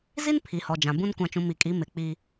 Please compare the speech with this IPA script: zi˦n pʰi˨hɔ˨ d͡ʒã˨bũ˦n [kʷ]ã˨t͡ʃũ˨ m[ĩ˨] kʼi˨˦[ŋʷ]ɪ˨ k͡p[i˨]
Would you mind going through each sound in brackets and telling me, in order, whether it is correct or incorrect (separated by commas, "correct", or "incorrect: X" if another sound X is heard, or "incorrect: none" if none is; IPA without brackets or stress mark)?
correct, incorrect: i˨, incorrect: m, incorrect: i˦